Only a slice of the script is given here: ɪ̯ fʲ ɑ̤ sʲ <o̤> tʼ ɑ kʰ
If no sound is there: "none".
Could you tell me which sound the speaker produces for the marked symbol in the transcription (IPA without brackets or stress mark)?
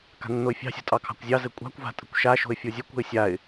o̤